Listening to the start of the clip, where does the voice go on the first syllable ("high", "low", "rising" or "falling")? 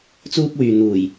high